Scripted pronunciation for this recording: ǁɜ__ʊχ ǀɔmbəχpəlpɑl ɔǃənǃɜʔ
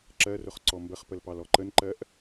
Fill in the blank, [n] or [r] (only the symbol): r